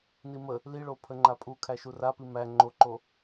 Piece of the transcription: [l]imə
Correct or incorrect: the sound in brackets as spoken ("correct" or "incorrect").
incorrect